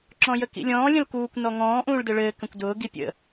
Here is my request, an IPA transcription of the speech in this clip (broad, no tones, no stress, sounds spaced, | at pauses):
ǁ ɔ̃ j ə k ḭ lʲ ɔ̃ː lʲ ə̃ l k uː kʷ n ɔ ŋ ɔ̃ː ʔ ũː ɭ d ɘ ɭ ɘː k ə̃ kʷ d ʊː ɡ i pʲ ə̰